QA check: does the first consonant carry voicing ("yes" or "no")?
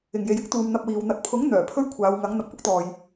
yes